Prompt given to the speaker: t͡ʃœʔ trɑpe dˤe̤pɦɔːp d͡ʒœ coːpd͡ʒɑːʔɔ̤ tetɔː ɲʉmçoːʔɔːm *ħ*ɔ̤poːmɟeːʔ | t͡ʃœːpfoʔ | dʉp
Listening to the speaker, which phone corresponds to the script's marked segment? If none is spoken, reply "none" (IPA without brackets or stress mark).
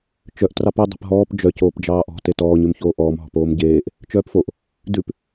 ɦ